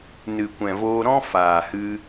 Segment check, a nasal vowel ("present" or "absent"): present